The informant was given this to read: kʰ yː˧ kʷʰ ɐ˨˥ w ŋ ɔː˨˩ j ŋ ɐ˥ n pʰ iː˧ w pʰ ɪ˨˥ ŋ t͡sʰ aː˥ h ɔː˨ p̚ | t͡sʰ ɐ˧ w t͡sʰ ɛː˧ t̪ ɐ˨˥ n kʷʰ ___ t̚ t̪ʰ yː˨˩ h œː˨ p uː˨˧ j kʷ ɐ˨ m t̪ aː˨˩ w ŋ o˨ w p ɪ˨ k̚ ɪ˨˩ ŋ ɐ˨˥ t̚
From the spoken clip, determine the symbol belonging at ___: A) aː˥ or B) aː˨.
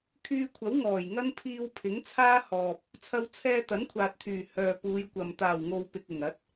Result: B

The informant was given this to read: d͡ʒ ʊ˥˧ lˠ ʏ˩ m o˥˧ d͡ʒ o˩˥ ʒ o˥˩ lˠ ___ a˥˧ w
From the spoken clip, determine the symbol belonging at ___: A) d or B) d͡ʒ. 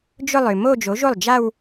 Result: B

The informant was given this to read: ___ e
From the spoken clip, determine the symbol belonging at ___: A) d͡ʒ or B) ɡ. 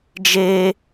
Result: A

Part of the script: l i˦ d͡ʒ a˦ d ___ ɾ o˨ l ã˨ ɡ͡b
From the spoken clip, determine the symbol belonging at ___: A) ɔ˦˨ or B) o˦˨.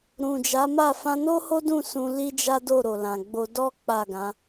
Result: B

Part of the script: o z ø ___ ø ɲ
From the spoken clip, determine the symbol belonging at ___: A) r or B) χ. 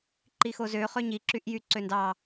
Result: B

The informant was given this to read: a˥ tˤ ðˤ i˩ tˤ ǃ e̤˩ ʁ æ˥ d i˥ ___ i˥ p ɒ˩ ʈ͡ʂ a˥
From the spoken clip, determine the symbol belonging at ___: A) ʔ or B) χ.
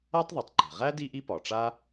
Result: A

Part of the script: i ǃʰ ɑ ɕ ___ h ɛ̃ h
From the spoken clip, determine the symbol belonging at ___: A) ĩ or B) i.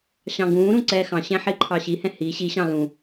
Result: B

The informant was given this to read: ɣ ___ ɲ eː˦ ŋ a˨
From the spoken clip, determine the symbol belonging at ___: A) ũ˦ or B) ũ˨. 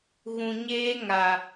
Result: B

